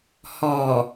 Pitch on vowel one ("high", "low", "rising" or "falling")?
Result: low